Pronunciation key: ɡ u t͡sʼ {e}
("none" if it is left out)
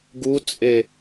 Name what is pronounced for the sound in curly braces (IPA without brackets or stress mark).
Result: e